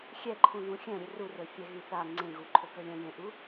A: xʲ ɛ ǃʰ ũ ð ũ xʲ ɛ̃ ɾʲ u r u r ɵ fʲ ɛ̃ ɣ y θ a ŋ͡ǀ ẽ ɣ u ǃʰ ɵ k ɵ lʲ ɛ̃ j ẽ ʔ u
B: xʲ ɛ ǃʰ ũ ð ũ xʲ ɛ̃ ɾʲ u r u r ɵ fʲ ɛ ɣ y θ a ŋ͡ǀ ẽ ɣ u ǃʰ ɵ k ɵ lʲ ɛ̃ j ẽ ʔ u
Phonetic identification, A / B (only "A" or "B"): B